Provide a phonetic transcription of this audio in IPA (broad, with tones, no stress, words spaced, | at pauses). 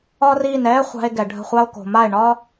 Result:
ɒ˦ri˦˨n ɛ˦χʷa̤˧e̯ ɡɛ˨ɖʱə̤˦˨χʷa˦o̯ ko̤˨ma˦˨e̯ɳɒ˦